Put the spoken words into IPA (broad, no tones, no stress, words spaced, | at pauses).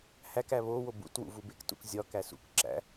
hækæ βowo bṵtwṵ vubektṵk zʲɒkæs ṵk ǁæ̰